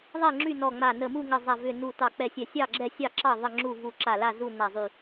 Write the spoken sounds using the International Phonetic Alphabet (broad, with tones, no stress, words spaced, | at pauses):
ðˤɛ˥˨ŋ͡ǁy˥˨nɔ˧˩ŋ͡ma˧˩ nə˧˩mu˥˨ŋə˧˩ zˤa˧˩vʏ˧˩nu˧˩ tɑ˧˩k͡pɛ˧˩sʲɛ˧˩ sʲɑ˥˨ɡ͡ǁɛ˥˨sʲɑ˥˨ǁɑ˥˨ ðˤə˥˨ŋ͡ǁu˥˨ vu˧˩ǁa˧˩la˥˨ zu˥˨ na˧˩zˤy˧˩